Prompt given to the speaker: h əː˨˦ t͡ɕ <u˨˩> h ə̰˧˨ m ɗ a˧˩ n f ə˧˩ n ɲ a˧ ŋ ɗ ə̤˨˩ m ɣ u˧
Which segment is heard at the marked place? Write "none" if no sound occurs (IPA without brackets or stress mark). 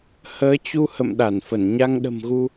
u˧